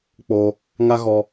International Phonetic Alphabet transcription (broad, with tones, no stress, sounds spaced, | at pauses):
k͡p o˧ | ŋ a˦ ɣ ɔ˧